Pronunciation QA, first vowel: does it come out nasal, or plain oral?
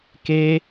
oral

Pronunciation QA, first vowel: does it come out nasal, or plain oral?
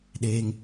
oral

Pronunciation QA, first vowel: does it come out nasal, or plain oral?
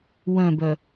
nasal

